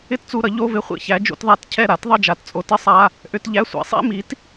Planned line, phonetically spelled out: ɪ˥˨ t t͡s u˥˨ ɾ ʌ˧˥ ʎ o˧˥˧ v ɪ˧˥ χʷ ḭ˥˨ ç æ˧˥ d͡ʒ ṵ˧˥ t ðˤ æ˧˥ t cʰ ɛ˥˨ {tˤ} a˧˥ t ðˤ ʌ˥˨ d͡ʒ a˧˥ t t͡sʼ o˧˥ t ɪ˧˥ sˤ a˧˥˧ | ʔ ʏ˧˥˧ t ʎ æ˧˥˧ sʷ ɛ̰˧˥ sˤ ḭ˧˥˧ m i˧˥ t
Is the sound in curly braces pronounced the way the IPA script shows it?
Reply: no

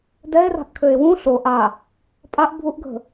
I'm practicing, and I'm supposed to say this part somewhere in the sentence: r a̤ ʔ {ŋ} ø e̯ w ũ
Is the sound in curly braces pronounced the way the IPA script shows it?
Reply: no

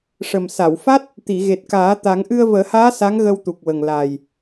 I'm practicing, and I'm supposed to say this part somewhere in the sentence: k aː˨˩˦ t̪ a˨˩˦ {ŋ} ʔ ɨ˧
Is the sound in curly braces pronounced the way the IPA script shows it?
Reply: yes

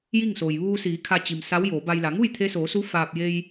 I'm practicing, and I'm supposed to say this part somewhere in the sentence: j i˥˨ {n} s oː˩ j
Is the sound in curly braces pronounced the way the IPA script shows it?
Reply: no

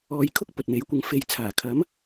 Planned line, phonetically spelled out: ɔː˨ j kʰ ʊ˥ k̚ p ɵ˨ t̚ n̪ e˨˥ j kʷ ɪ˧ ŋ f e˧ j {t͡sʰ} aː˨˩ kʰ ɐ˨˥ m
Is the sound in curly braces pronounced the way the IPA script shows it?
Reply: yes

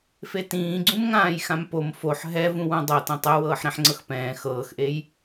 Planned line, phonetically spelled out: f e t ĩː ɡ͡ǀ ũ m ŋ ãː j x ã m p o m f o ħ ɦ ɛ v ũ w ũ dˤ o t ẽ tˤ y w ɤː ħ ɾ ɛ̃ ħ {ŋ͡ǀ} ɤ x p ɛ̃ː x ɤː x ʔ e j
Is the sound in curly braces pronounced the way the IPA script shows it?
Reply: yes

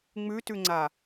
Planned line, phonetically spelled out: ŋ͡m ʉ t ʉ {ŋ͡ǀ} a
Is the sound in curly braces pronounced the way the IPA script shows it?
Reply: yes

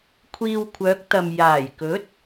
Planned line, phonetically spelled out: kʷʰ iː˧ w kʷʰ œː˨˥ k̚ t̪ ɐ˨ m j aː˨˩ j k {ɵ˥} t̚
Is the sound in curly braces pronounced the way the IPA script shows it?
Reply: no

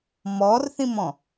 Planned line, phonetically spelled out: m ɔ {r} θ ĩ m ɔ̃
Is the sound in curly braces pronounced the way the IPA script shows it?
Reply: yes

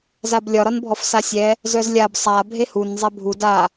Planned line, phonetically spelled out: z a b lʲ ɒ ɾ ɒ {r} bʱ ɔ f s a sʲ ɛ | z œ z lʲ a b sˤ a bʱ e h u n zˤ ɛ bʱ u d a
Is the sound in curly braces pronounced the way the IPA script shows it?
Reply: no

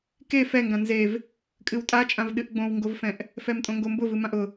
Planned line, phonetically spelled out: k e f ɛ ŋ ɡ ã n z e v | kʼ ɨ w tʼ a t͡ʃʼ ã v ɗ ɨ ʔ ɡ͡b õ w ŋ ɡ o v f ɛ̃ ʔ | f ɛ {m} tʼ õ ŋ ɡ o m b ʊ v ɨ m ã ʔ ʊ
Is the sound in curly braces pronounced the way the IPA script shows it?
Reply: yes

